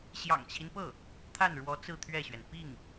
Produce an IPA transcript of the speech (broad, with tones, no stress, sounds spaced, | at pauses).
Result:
ɕ j ɑ̰˨˩ ŋ t͡ɕʰ i˦ n p ɤ˥˩ | t̪ʰ a˥˩ n ɻ w ɔ˧˥ t͡s ɹ̩˥˧ t̪ʰ ɥ ɛ˥˩ ɕ ɥ ɛ˩ n p i˥˩ ŋ